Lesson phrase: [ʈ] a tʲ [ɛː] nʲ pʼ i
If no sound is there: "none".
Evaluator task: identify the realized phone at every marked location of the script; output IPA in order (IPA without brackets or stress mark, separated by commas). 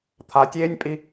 t̪ʰ, eː